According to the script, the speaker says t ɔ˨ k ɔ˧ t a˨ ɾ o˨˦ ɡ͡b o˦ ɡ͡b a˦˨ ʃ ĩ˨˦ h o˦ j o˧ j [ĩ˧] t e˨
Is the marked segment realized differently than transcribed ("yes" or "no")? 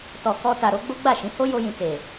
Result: yes